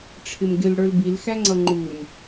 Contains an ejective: no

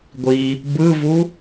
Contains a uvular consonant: no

